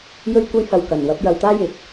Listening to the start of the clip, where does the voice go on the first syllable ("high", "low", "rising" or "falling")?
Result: high